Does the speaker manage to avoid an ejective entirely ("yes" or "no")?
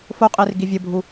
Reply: no